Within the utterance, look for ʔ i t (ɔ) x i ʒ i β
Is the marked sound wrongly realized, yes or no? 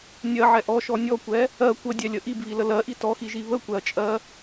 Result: no